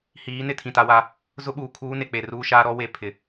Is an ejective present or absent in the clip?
absent